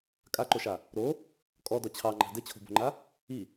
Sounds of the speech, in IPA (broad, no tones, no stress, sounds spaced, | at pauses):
kʼ a ǃ o ʃ a | ɾ o | kʼ ɔ d ɔ t͡ɕʰ ɑ ŋ͡ǃ ɑ̤ d ɘ t͡ɕʰ o̤ b o̤ ŋ͡ǃ a | i